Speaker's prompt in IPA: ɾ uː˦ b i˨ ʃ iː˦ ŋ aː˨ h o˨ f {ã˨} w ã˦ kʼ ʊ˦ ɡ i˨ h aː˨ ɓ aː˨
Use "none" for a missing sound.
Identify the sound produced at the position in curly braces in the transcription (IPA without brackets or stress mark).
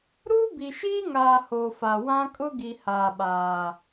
a˨